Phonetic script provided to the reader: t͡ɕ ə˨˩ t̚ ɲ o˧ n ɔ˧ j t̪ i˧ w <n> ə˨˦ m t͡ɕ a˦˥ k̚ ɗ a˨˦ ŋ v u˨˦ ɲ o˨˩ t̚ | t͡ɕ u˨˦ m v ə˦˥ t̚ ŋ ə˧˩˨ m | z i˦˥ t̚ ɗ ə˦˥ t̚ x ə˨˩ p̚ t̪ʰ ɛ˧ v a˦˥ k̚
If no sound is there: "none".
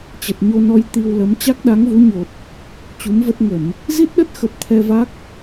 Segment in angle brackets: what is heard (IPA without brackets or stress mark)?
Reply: l